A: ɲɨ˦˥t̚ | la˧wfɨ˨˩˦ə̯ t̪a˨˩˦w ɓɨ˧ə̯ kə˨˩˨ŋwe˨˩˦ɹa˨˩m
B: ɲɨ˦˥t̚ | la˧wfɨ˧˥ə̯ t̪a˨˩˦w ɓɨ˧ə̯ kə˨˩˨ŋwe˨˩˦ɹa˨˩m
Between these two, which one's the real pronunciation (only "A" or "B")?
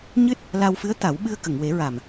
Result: B